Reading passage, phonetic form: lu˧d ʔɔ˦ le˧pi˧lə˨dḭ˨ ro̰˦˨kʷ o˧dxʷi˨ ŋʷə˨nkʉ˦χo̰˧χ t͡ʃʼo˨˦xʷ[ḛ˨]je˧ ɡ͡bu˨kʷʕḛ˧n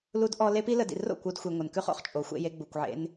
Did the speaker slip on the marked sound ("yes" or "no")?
yes